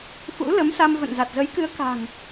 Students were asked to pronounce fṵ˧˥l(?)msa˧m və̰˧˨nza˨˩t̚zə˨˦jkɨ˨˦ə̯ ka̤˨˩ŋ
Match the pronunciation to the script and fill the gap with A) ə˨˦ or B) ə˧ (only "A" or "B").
A